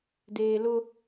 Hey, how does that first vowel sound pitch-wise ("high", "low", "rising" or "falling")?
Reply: low